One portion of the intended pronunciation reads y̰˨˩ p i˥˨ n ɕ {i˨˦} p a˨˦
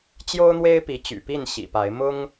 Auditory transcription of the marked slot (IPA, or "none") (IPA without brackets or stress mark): ḭ˨˩